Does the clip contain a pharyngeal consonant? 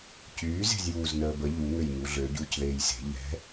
no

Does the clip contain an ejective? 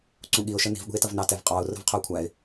yes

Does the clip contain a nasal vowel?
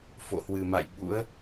no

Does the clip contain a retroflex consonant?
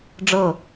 yes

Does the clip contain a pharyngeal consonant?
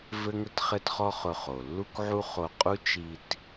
yes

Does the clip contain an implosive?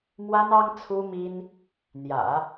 no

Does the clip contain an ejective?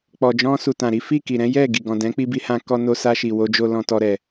no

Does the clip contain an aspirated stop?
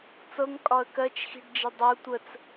no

